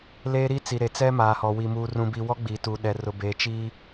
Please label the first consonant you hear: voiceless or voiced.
voiced